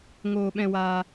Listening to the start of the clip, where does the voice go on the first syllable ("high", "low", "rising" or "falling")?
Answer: high